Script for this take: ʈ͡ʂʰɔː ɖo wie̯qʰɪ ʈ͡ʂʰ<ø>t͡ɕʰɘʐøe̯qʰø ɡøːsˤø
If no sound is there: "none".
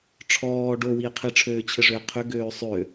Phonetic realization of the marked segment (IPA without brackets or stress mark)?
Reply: øː